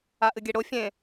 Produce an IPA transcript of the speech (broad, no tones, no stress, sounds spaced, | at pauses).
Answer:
a ʔ ɨ ɡʲ e ɽ o fʲ ẽ